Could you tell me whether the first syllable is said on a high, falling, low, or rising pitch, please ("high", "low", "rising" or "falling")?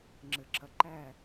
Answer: low